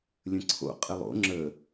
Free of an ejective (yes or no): no